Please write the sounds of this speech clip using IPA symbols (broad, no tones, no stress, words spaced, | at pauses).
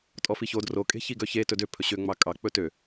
tʼɔfiço dro kʼe̤çiɡœçe tɵdø pʰɵɕø ŋ͡mɑkʼɑ k͡pɵtø